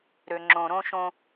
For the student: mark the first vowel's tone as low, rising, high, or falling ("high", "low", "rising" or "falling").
low